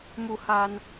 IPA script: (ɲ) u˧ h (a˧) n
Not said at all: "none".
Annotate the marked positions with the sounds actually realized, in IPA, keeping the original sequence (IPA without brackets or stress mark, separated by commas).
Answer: m, a˧